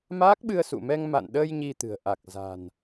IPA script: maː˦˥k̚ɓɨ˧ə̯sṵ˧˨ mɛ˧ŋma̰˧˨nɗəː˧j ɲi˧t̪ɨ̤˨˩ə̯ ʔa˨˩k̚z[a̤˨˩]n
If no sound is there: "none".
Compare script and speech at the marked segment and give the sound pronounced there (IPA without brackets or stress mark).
a̤˨˩